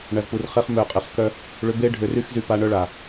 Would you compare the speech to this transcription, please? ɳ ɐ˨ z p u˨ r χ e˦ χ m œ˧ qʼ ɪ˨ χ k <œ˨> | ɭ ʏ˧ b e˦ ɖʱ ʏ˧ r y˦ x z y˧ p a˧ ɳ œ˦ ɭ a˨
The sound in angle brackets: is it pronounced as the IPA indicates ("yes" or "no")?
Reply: no